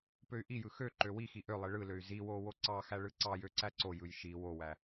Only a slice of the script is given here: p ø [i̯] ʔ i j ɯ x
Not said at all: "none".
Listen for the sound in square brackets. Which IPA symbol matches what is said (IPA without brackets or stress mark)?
y̯